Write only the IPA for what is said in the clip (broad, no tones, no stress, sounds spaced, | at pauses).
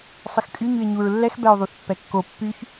sˤ ə x kʼ y ɲ y e̯ ɲ u ɹ lː ɛ x b ɛ o̯ ðˤ u θ pː ɛ kː o pː y ç